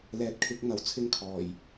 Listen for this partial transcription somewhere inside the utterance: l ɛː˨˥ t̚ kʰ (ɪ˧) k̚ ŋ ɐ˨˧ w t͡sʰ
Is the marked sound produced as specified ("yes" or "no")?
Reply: no